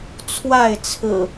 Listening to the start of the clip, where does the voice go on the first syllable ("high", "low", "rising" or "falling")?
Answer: falling